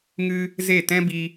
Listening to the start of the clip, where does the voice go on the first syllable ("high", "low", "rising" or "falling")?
high